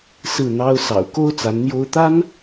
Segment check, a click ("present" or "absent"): absent